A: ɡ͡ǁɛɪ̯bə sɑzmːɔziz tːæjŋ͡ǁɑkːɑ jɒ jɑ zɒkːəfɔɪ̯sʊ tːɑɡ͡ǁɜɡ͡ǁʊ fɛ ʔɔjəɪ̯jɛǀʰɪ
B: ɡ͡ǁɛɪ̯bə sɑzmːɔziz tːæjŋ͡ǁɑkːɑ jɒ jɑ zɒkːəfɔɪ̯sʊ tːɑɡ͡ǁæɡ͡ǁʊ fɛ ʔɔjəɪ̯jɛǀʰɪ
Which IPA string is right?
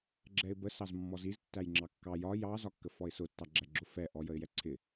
B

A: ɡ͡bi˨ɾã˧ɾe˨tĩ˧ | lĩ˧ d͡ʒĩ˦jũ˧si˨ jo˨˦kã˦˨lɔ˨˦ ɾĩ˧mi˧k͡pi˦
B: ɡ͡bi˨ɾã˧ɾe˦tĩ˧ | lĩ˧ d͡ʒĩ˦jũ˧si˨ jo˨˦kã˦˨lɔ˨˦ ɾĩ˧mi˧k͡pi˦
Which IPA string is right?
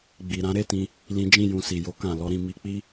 B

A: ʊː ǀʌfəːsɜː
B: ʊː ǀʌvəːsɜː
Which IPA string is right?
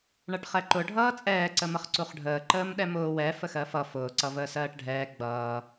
B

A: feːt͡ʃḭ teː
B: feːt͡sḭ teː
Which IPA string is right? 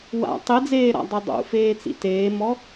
B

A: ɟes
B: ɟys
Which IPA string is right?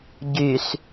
B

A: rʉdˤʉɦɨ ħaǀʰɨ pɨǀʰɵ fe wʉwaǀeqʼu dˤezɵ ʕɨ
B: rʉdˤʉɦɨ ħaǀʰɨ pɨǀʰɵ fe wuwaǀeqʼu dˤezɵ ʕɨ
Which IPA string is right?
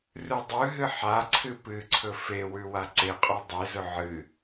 A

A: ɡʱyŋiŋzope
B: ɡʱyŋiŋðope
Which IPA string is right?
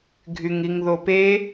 B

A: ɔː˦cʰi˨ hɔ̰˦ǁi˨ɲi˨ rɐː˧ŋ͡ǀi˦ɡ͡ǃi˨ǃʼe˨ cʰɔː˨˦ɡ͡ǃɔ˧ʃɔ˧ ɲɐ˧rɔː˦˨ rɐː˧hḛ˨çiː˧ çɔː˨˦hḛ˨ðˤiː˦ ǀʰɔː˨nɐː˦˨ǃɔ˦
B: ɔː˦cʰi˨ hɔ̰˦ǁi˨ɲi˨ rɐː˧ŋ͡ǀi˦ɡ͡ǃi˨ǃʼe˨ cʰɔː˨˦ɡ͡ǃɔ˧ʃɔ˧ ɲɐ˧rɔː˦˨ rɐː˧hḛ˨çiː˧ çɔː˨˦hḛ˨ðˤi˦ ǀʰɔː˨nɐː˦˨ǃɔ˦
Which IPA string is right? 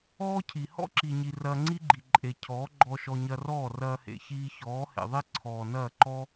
B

